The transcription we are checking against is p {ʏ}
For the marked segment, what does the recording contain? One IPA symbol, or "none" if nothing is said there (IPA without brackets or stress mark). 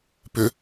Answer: ʏ